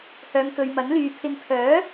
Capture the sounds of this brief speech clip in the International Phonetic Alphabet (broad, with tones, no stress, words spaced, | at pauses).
hœː˨ŋkɵ˨ɥmɐ˨˥nlyː˨ pʰɪ˧ŋ pʰœː˨˥